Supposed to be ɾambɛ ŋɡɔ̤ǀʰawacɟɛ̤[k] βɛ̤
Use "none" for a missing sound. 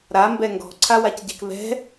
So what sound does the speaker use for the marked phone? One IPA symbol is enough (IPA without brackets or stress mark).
k